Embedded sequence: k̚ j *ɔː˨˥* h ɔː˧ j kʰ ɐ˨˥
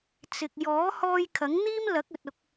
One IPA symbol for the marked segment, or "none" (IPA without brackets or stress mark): ɔː˨˥